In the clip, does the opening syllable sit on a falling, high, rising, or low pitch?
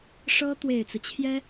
high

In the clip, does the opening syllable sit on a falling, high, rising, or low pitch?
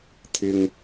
high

